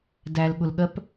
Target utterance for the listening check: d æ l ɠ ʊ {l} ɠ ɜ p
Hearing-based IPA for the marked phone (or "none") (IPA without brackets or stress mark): l